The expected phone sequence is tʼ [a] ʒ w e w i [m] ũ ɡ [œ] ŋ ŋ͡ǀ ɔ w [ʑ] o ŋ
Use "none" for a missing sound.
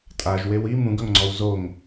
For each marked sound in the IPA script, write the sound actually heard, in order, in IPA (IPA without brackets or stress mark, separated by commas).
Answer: a, m, œ, z